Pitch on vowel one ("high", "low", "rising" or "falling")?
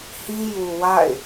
high